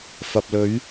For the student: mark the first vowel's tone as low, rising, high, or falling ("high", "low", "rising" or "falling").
low